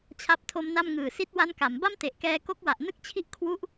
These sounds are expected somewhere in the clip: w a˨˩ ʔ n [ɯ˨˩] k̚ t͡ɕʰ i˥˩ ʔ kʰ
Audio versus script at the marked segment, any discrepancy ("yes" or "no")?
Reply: yes